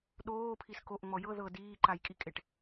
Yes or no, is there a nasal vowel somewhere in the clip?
no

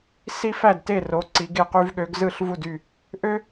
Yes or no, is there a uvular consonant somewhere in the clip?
yes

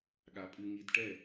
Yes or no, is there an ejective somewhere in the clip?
yes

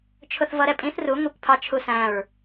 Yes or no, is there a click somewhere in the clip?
no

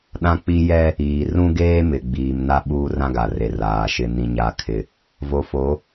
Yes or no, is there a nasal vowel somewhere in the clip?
yes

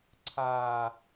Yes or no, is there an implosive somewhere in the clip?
no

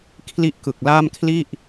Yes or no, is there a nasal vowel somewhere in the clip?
no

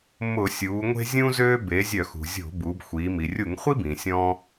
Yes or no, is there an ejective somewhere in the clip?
no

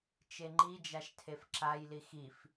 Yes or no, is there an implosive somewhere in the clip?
no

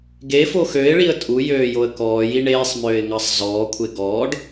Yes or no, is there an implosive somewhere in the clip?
no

